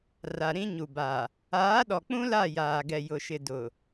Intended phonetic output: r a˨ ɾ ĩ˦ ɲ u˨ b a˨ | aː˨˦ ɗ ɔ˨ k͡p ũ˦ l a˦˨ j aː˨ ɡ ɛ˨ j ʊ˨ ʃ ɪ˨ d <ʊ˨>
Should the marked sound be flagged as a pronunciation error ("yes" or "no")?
no